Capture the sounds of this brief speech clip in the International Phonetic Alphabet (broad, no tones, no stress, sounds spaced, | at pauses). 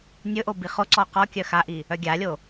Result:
nʲ ɵ ʔ o b i χ o ǀ ɔ q ɔ kʲ œ x a ʔ i | œ ɡʲ a lʲ o